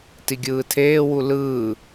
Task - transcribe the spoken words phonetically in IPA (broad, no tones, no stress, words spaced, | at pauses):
tiɡʲɯːtʰeːwu lɯː